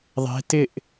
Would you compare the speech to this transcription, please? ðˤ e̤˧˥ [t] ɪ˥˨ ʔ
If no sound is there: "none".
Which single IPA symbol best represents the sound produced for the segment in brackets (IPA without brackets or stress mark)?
t